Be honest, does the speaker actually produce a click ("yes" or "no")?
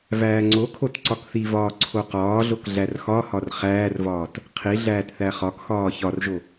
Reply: yes